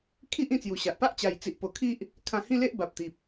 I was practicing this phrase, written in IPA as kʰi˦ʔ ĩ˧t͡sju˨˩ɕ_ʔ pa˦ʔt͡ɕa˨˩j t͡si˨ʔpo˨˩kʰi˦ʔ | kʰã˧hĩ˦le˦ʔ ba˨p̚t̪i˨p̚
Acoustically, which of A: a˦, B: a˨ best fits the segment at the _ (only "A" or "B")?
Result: B